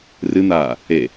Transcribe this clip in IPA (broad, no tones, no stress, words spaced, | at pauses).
rɨn̪aː | e